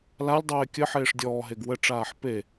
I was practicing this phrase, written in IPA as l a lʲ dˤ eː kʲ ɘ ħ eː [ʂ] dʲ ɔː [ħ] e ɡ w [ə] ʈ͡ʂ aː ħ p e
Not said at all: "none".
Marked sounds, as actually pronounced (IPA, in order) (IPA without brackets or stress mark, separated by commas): ʂ, ɦ, ə